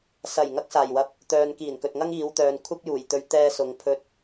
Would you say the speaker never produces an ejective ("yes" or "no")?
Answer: yes